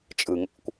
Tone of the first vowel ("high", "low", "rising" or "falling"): low